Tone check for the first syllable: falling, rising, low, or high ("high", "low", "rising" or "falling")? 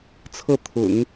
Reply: falling